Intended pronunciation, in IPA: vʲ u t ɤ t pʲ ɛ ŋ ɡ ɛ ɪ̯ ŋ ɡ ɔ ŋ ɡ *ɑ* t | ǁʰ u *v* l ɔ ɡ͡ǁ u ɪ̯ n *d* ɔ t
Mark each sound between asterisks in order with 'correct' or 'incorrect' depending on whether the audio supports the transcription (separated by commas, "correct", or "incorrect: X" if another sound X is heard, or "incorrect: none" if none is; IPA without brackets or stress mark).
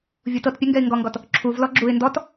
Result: incorrect: ɔ, correct, correct